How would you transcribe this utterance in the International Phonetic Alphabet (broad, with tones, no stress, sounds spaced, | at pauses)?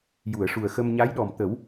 j u˨˩˨ ə̯ ʂ u˨˩ ə̯ x ə˧ m ɲ a˧˥ j ɗ ɔ˨˩ m t̪ ə˨˩˦ w